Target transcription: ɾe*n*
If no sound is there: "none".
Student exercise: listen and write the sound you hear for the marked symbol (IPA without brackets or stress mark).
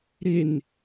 n